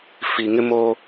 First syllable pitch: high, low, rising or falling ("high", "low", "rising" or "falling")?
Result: low